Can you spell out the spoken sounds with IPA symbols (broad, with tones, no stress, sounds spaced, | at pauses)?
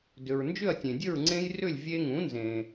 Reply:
d ʏ˩ ɹ n d͡ʒ ʏ˥˨ ɐ̯ tʲ ẽ˩ dʲ ə˥˨ ɹ ŋ͡ǀ ẽ˦ j r ʏ˥˨ lʲ vʲ e˦ ŋ ũ˩˥ n z ẽ˩